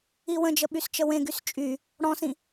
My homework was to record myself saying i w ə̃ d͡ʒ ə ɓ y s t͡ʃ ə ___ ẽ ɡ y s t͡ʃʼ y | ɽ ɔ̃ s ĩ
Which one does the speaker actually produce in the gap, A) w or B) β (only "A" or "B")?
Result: A